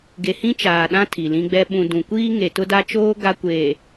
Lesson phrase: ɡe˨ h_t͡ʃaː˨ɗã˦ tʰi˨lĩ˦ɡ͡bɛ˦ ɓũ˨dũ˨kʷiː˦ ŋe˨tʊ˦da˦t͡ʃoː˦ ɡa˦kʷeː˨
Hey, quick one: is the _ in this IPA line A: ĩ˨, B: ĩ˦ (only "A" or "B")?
B